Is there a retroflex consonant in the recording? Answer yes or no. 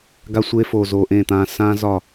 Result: no